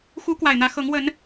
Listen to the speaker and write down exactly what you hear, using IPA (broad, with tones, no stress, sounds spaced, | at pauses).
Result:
x u˨˦ k w a˨˩ ɪ̯ n̪ ä˨˦ x ɤ˨˦ ŋ w ə˨˦ n